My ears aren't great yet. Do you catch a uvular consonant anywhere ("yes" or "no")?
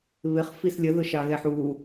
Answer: yes